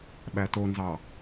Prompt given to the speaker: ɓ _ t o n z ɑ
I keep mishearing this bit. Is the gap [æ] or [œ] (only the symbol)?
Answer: æ